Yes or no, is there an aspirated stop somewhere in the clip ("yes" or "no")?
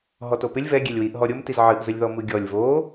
no